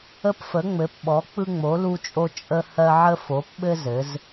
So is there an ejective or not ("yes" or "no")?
yes